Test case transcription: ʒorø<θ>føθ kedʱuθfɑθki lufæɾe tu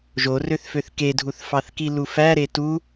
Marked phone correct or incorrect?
correct